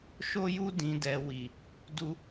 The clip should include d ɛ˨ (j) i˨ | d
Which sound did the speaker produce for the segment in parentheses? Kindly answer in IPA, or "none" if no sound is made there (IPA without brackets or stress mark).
w